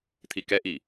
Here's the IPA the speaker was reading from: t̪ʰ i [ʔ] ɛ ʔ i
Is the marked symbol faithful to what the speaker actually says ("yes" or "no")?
no